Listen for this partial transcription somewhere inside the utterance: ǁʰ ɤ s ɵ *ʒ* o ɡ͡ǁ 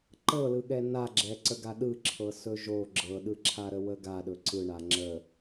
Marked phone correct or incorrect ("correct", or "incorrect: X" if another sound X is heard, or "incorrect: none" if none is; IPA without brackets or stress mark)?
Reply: correct